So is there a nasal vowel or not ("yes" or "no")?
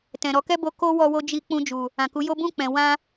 yes